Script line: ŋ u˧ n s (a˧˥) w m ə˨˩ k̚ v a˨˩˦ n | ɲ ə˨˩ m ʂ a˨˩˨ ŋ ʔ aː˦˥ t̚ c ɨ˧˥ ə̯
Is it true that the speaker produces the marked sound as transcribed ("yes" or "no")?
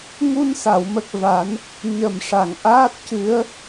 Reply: no